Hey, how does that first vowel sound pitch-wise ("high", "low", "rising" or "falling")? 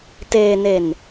low